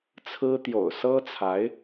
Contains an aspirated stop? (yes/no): yes